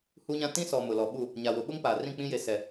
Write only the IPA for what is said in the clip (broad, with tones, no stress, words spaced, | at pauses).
hu˦ɲã˦ tĩ˦sɔ˨ mʊ˨lɔ˨ɓu˦˨ | ɲa˨wʊ˨ ɓʊ˦ŋpa˨ rĩ˦˨k͡pĩ˦je˨sɛ˨